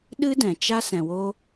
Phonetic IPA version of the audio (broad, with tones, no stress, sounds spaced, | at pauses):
ɗ ɨ˦ d ɛ̃˨ t͡ʃ a˦ s ɛ̃˨ w o˧